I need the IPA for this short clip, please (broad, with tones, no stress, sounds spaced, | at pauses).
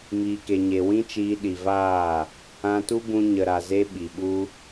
m iː˨ k e˨ ɲ e˨ w ĩ˦ t͡ʃ iː˧ ɗ i˨ v aː˦˨ | ã˧ t u˦ b ũ˧ ɲ ə˨ ɾ a˨ z e˧ ɓ i˨ ɓ u˦